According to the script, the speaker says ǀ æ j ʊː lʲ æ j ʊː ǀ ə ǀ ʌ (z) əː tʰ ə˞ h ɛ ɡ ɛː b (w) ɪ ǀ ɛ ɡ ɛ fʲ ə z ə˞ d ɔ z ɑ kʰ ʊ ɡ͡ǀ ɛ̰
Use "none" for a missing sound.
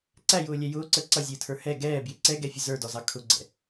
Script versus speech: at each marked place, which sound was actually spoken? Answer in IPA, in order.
zʲ, j

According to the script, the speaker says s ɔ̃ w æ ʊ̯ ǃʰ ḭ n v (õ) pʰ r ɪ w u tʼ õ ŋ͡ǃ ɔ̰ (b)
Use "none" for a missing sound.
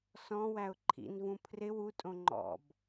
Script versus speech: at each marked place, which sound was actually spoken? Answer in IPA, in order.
ũ, b

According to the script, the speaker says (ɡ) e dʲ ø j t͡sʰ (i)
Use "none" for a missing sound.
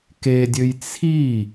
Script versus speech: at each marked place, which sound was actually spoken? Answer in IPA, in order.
k, i

